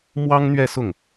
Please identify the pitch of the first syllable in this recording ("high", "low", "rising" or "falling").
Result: high